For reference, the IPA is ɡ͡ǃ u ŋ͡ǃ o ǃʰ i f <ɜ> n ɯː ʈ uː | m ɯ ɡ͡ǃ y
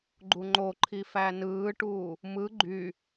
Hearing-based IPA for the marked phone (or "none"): æ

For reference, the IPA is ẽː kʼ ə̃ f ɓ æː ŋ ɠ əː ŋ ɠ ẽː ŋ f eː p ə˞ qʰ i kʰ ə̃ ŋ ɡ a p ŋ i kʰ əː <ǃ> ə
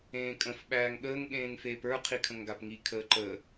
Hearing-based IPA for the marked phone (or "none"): ǃ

